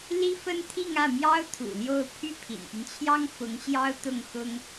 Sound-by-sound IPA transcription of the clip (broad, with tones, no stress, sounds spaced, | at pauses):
l i˥ f ə˥ n t̪ʰ i˥˧ ŋ ä˥˩ m j ɑ˥ ʊ̯ t̪ʰ ṵ˨˩ l j o˥˧ ʊ̯ pʰ y˥˩ pʰ ḭ˨˩ n p y˦ n t͡ɕʰ j ɑ˥ ŋ f ʊ˧˥ ŋ ɕ j ɑ˥ ʊ̯ t̪ ʊ˥˩ ŋ x ʊ˥ ŋ